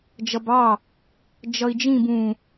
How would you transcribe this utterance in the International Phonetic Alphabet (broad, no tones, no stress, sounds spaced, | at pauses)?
d͡ʒ ʌ b ɑ | d͡ʒ ʌ i̯ d͡ʒ ĩ b ũ